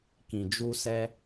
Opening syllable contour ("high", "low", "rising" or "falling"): low